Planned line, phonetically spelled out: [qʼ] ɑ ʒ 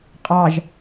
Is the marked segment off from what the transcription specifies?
no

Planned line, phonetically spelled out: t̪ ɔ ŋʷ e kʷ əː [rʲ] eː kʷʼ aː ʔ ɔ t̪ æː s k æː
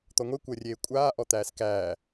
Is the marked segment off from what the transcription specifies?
no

